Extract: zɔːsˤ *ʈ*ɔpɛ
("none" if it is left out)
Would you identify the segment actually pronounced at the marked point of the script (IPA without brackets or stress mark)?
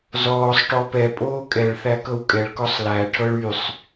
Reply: ʈ